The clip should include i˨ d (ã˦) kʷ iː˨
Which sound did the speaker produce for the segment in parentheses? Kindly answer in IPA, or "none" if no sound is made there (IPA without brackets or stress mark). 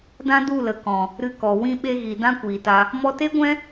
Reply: ã˦